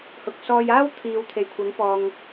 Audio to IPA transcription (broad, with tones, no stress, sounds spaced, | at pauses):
h ʊ˨ k̚ s ɔː˧ j aː˥ w t̪ʰ iː˨ w t̪ʰ e˨ j kʷʰ ɐ˨˧ ŋ p ɔː˨ ŋ